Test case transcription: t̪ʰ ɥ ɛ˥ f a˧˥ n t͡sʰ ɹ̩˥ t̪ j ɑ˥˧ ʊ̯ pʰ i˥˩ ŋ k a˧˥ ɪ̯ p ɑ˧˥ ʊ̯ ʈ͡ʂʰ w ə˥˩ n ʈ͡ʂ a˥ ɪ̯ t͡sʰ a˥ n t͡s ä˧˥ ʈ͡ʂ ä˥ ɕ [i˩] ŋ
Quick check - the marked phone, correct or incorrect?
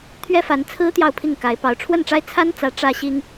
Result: incorrect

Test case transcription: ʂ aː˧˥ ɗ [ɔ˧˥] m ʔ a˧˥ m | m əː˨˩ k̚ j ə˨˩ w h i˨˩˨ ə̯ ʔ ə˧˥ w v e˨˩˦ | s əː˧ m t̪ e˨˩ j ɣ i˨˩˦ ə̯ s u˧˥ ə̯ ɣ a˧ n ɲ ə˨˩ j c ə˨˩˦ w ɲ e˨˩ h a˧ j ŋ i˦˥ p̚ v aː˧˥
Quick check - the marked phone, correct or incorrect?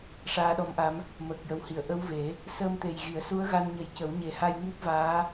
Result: correct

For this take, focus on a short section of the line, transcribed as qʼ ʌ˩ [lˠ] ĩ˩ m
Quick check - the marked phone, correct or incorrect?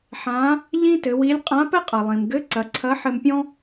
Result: correct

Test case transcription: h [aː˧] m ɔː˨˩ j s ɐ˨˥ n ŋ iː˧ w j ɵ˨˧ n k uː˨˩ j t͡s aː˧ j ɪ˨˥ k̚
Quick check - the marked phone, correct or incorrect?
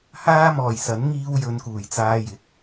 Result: correct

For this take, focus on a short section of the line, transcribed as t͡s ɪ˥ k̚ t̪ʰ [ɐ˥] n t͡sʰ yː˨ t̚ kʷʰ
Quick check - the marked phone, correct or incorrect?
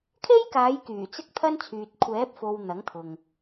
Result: correct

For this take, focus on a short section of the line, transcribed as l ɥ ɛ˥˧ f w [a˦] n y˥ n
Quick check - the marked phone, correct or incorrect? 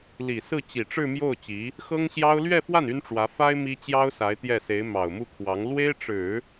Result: incorrect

